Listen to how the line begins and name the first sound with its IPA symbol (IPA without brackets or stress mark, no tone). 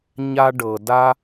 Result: ɲ